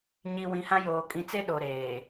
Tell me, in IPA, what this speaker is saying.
ɲi˨ wĩ˨hã˦joː˨ kʼĩ˨t͡se˦ ɗo˨ɾeː˨

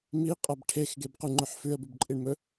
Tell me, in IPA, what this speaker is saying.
miqʼab ʈʰexɡebquŋ͡ǃɵħ fʉə̯bʉbǃʼiɳ mɵ

